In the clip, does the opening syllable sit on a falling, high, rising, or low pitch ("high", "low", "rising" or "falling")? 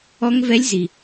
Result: rising